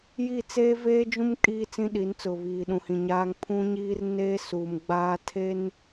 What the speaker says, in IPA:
j i˦˨ t͡s eː˦ v eː˦ d͡ʒ ũ˦ m kʼ iː˦ t͡s ĩ˦ ɗ iː˨˦ n t͡s ʊ˨ β iː˨ ɗ ũ˨ h ĩ˨ ɲ aː˦ ŋ pʰ ũ˦ ɲ iː˦ r n eː˦ s uː˨ m ɡ͡b aː˦ tʰ e˦ n

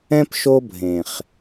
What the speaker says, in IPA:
ɛ̃˦ p ʃ o˦ bʱ ẽ˨ χ

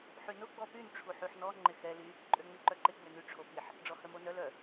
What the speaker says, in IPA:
ħ y n ʊ ɡ͡b ɔ p y n ʈ͡ʂʰ u ħ y ħ n ɔ ŋ͡ǃ ɪ x ɛ l y | ǃʼ ø ŋ͡m y ǃ œ ǃ ɪ ɡ͡b ø n y ʈ͡ʂʰ o p i ħ | ɖ͡ʐ ɔ h œ m o n œ l œ

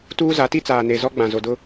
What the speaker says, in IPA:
t uː˦ z a˨˦ t i˦ t͡s aː˨ n e˨ z ɔ˦ ɡ͡b ã˨ z o˨ d ʊ˦

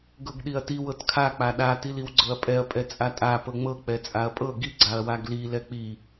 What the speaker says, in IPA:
ɡ ɤ ɡ ɗ i ɐ̯ t i w ɤ t kʰ a k͡p a ɗ a t i l i w ɡ͡ǀ ɤ ɐ̯ pʼ ɛ ɐ̯ pʼ ɛ t͡sʼ a tʼ a p ɤ ŋ͡m ɤ k͡p ɛ t͡sʼ a ɐ̯ pʼ ɤ ɡ i ɡ͡ǀ a ɐ̯ w a ɡ l i l ɛ k͡p i

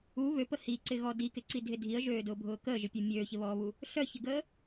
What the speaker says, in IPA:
u β ø p ə h i ǀ ɪ ɣ ɔ d i k ɪ ǀ i dʱ ɪ dʱ i ə̯ ʒ øː d ʊː bʱ ʊː k əː ʒ ɪ pʲ ø mʲ øː ç ɪ β ɔː β u | ɬ œ ç ɪ ɡ əː

